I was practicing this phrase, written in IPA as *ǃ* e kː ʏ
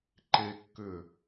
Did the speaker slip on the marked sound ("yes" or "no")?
no